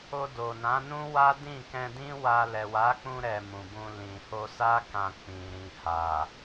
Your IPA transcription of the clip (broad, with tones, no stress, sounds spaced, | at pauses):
o˧ d o˨ n ã˨˦ n ũ˦ w a˦ d ĩ˦˨ k ɛ̃˧ d ĩ˦ w a˧ l ɛ˨ w a˨˦ k͡p ũ˧ ɾ ɛ˨ m ũ˨ b ũ˧ l ĩ˨ h o˧ s a˦ k ã˧ k͡p ĩ˨ ɾ ĩ˨ h a˨